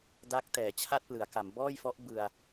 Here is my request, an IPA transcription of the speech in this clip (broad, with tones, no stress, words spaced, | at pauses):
daː˦˥k̚tɛː˩˦ t͡ɕʰa˥˩t̚plɯ˩˦a̯ka˩˦m bɔː˥˩jfɔ˦˥ʔ bɯ˧a̯